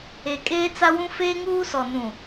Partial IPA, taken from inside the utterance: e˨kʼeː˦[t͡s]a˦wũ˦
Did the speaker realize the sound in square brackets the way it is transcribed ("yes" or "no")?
yes